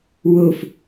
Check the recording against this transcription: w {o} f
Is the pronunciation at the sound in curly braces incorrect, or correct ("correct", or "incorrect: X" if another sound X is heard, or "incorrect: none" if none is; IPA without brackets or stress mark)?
correct